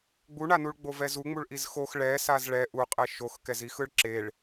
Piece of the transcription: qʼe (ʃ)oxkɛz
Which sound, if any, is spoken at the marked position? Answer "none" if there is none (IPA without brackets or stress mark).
ʃ